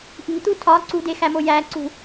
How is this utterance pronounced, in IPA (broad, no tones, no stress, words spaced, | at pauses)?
ʔi̤t̪u tʰɒ ǀṳdexæmo jæǀṳ